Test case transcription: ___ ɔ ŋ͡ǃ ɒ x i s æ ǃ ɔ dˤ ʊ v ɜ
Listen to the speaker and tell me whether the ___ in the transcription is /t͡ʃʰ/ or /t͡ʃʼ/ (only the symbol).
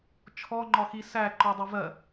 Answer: t͡ʃʰ